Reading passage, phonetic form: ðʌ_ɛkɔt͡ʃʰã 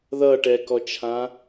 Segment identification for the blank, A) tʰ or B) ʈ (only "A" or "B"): B